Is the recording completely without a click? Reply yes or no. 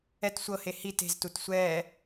yes